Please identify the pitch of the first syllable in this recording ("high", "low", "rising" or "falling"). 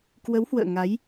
rising